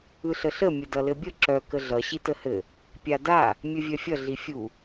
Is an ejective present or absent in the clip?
absent